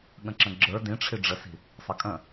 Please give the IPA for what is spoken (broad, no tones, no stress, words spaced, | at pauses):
ɠə̃ǁə̃ɡ͡ǁə˞ dĩʈ͡ʂʰi ɖ͡ʐəsi̤ | sˤəkʼə̃